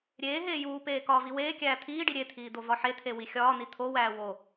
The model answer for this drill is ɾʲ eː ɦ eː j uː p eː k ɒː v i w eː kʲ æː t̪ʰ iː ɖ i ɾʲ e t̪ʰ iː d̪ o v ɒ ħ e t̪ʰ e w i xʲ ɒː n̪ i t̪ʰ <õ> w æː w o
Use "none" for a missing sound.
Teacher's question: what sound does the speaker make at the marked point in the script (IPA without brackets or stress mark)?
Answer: o